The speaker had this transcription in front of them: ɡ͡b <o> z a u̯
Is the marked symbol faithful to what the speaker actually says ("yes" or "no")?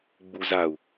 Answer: no